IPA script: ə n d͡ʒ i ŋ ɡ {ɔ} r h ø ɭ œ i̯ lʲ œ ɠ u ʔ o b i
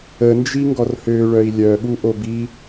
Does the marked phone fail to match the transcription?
no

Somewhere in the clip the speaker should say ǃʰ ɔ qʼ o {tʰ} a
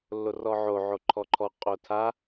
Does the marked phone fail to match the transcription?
no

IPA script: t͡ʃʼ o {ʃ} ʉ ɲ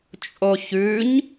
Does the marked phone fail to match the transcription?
yes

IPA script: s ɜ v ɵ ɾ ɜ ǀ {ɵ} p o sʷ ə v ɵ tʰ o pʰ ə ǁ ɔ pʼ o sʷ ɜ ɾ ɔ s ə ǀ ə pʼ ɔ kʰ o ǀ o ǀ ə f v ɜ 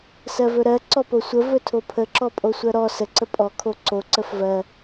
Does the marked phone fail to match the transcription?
yes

